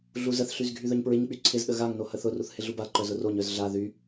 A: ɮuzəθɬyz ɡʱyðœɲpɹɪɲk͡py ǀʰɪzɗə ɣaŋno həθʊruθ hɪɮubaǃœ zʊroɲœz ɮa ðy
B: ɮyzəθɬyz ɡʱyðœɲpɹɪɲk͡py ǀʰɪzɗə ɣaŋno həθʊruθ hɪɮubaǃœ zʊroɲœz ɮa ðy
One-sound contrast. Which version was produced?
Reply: A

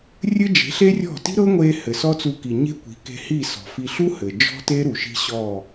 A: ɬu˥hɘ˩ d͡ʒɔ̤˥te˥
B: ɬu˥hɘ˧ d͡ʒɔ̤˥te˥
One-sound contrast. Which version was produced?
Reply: A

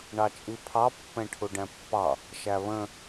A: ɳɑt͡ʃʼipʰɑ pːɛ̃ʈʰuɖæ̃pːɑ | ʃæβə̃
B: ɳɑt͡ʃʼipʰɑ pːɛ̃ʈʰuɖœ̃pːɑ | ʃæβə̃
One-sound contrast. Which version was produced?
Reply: A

